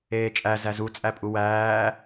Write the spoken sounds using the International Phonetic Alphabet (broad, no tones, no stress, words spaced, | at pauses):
eːt͡ʃʼæ zæzu t͡sʼæpʼuwæː